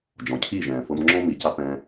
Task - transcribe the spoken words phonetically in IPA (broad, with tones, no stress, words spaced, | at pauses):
d͡ʒɔ̃˨cʰiː˦˨ʒɛ̃ː˨ fɤ˧mŋ͡ǁɔ̃˦ mi˨ca˧ pɛ̃ː˧